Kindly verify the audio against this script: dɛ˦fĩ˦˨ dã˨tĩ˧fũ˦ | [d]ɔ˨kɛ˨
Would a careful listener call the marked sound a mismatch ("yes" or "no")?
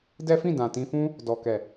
no